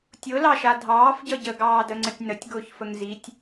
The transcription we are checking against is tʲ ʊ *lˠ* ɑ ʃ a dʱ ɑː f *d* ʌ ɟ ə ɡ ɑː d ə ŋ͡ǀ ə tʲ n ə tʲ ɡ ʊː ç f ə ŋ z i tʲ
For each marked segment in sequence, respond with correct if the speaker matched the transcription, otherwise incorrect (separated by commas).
incorrect, incorrect